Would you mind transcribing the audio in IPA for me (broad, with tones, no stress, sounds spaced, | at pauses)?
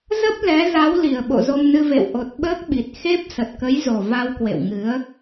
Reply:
z ə˦˥ p̚ l ɛ˨˦ z a˨˦ w l i˧˩ ə̯ ɓ o̰˧˨ z o˧ m n ɨ˧ v ḛ˧˨ w ʔ o˨˩ t̚ ɓ əː˦˥ k̚ ɓ i˨˩ t̚ x e˦˥ p̚ s ə˨˩ t̚ k ə˨˦ j z o˨˩ v a˧ w k w ḛ˧˨ w ŋ ɨ˨˦ ə̯